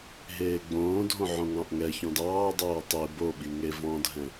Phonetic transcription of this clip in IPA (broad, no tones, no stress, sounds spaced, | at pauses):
ɦ eː ɡ͡b õː dʱ õ ʕ õ ŋ ɑ̃ ʔ ŋ ɛ ç ɔ̃ d ɑː dˤ oː tˤ i b o ɓ i ŋ e v ɔ̃ dʱ ɛ̃